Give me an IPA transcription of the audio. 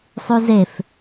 sˤ y z e f

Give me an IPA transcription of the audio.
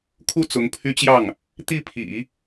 kʰ u˥˩ t͡s ʊ˧˥ ŋ pʰ y˥ t͡ɕ j ɑ˥˩ ŋ | t̪ i˥˩ pʰ ḭ˨˩˦

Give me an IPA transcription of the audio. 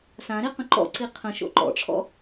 s ã ɾ i q ə̃ ǃ ɔ̰ ǀ i qʰ ə̃ ʃ o̰ ǃ ɔ̰ ʈ͡ʂʰ ɔ̰

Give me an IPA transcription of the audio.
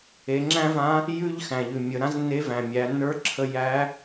e˩˧ ŋ͡ǁ æ̃˥ v ã˧˥ | j ʉ˥ ʎ x æ̃˩ ʎ ʉ˩ mʲ ə˩˧ ɾ ã˧˥ z nː e˧˥ v æ̃˩ mʲ æ˩˧ nː ə˞˧˥ ǁʰ ə˧ j æ˧˥

